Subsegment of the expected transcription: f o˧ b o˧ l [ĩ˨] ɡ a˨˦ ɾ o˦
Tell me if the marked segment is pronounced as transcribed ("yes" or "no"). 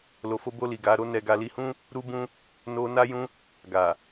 no